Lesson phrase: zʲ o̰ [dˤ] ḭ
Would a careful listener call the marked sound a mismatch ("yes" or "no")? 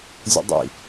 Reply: no